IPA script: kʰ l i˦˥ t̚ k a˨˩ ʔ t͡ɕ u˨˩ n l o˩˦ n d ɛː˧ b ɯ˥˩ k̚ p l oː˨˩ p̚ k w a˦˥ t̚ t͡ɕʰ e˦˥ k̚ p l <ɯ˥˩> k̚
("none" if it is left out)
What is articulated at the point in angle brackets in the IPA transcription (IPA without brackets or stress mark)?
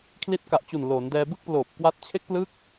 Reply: ɯ˦˥